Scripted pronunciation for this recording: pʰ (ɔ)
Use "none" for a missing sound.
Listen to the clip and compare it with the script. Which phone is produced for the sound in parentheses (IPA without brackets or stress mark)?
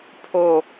o